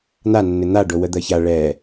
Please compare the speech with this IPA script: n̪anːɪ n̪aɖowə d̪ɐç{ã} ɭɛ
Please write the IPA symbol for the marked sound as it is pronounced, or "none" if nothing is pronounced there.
a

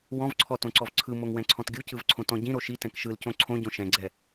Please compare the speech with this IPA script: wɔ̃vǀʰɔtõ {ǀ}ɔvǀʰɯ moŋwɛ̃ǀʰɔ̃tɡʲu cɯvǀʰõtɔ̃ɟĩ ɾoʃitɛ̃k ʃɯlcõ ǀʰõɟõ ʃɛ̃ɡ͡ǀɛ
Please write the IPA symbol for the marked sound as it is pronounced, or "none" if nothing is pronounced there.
ǀ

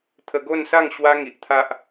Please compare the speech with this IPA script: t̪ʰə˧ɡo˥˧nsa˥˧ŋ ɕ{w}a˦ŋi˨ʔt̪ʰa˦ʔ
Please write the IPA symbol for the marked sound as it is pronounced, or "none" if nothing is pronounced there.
w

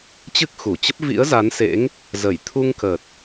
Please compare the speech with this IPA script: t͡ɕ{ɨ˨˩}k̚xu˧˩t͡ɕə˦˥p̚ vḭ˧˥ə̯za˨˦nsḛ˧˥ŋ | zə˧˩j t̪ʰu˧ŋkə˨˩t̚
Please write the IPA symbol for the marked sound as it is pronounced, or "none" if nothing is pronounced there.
ɨ˦˥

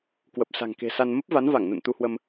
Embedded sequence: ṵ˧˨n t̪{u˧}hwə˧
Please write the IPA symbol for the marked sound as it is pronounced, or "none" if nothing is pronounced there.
u˧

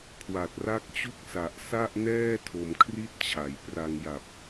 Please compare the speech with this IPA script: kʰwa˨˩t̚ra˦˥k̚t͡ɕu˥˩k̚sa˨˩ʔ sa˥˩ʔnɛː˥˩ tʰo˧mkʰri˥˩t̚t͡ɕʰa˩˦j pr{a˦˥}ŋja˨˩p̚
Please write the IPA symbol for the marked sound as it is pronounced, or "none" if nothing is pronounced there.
a˧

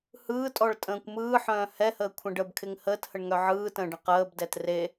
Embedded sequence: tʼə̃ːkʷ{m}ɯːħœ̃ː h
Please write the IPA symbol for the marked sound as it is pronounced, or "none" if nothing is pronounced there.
m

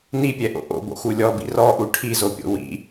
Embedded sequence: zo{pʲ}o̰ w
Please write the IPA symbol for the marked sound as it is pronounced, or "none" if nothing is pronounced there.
pʲ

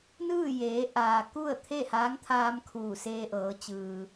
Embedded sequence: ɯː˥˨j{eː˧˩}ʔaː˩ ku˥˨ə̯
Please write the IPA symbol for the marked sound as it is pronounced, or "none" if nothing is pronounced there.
eː˩˧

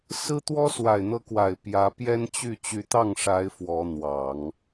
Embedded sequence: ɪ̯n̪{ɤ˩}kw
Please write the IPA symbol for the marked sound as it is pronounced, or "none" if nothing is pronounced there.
ɤ˧˥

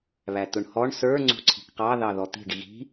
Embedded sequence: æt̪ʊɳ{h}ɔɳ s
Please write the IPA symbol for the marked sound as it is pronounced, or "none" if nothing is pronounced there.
h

